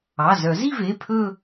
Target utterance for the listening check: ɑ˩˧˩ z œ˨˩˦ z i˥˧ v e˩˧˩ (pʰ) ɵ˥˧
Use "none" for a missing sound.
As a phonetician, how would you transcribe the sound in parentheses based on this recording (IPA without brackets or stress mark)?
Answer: pʰ